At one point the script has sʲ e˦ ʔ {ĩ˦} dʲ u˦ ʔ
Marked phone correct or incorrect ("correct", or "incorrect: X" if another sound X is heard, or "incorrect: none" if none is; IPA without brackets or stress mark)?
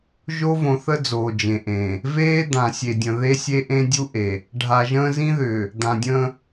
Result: incorrect: ẽ˦